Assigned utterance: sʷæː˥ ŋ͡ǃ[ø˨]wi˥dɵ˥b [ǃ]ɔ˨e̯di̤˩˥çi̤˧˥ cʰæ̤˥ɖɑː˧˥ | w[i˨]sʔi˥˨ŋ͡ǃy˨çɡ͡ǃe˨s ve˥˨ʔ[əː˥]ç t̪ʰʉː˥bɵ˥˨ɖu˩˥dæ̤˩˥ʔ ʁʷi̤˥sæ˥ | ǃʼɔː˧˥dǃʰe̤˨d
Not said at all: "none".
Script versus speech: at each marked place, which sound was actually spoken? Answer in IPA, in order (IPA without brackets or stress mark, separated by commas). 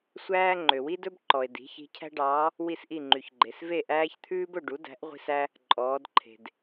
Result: ø˨, ǃ, i˥˨, æː˥